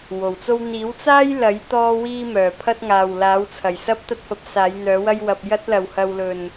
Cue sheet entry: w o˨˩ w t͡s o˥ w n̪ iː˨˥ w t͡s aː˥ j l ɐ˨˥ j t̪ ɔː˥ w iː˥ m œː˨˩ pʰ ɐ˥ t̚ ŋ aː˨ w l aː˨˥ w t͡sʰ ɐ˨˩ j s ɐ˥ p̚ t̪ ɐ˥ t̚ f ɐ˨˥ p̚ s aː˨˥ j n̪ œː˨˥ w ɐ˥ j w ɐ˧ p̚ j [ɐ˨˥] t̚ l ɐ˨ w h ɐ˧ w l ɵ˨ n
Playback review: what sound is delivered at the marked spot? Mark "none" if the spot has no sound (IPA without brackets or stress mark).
ɐ˥